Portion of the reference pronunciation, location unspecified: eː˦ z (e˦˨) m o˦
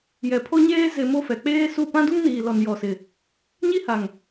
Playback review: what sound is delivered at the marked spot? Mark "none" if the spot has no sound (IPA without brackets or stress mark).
e˨